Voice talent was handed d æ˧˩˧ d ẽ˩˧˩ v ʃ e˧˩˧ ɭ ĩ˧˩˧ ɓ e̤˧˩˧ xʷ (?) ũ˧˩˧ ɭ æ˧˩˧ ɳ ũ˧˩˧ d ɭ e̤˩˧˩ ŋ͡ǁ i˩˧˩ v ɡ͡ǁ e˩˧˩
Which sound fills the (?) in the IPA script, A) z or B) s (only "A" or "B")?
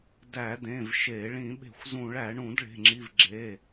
A